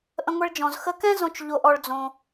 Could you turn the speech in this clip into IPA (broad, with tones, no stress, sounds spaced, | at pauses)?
ʔ ə̃˧ ŋʷ ɛ˧ ɭ d͡ʒ ɔ̃˨ z x ə˧ k ɛ̃˦ z õ˧ t͡ʃ ʎ o˧ ʔ ɔ˧ ɭ d͡z õ˧